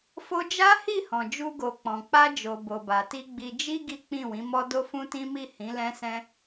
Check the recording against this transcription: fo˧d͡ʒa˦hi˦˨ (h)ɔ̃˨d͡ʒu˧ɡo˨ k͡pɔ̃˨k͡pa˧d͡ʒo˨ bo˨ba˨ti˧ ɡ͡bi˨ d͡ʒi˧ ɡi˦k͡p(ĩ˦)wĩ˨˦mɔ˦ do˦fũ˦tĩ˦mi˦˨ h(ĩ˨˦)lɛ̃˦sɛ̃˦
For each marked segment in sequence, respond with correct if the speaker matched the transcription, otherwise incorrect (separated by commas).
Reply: correct, incorrect, correct